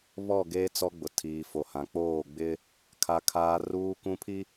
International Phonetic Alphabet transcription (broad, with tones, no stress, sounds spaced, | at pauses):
β ɔ˦˨ ɡ eː˦ t͡s ɔ˦ ɡ͡b ʊ˨ tʰ iː˨ f o˨ h ã˨ k͡p oː˦˨ ɡ͡b ɪ˦ | kʰ a˦ kʰ aː˦ r uː˦ k ũ˦ pʰ i˦